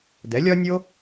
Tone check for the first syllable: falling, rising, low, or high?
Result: rising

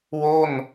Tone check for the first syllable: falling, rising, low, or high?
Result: falling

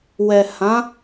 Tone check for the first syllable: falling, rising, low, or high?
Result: low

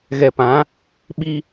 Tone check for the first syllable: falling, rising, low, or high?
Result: low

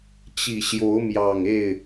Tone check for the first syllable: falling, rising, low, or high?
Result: low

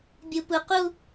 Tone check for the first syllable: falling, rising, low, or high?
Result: low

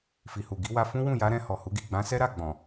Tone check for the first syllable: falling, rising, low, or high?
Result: low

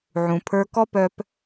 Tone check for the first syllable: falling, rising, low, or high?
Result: low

